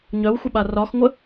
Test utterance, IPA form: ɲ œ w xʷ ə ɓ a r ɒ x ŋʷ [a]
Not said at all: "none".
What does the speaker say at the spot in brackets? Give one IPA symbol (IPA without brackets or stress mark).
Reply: ə